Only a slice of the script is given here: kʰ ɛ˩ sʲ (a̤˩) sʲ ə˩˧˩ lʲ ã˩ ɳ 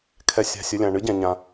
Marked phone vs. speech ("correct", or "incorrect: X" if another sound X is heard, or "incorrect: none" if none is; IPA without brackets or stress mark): correct